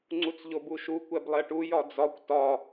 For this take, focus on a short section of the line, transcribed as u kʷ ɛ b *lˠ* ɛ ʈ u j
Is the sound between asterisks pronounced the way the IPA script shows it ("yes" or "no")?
yes